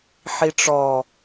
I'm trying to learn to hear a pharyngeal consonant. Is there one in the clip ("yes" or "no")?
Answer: yes